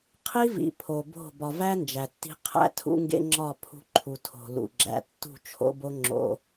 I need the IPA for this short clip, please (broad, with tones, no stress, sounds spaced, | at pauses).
qʰ i˦ v ḭ˨ pʰ o˨ b o̤˦˨ b ɒ˨ v æ˦ n d͡ʒ æ˨ tː i̤˦ qʰ æ̰˦ tʰ ṵ˦ ŋ ɡ ḛ˦ ŋ͡ǁ ɒ˦˨ pʰ ṳ˦ ǃʰ u˨ tʰ o̤˨ l ṵ˨ ɡ͡ǁ æ̰˨ tː ṳ˦˨ t͡ʃʰ o̰˦ b o˦ ŋ͡ǁ o̰˦